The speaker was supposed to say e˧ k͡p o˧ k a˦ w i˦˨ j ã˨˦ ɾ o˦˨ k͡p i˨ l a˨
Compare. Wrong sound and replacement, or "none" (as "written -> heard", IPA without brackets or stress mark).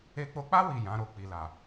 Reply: k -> k͡p